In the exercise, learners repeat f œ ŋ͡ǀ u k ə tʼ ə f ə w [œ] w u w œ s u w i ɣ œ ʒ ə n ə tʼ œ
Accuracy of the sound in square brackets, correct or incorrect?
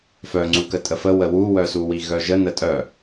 incorrect